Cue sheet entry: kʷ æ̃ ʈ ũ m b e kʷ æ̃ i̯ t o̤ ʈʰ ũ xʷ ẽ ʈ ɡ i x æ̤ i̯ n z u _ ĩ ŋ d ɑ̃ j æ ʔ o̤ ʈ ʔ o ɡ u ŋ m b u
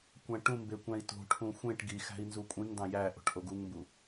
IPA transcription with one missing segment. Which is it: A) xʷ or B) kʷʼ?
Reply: B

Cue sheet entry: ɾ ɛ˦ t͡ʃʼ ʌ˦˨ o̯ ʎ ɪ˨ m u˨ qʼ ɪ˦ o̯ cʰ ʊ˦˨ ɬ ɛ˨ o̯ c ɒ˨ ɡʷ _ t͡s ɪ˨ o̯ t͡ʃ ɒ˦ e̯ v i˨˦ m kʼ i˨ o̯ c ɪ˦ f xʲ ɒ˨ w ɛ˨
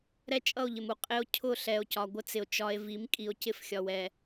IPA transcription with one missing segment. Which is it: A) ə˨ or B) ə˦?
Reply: B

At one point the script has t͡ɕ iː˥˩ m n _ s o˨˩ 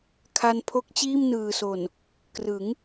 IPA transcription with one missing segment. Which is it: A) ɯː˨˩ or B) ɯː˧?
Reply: A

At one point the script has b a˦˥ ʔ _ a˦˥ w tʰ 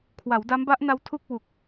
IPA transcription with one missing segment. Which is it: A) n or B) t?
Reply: A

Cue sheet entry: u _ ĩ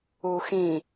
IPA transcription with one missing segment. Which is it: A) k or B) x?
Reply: B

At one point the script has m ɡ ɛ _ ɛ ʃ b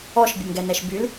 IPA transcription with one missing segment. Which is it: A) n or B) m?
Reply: A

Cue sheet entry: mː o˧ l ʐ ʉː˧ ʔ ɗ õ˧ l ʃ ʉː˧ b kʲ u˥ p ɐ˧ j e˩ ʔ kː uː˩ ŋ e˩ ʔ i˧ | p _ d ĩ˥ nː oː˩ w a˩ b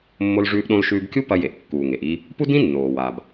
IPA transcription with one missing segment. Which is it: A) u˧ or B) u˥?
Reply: B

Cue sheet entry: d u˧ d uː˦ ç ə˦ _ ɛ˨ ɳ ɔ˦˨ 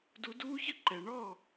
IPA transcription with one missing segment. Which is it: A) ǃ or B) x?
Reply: A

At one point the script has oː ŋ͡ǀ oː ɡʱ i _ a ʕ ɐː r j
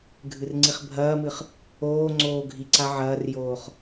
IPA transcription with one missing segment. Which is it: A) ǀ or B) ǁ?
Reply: A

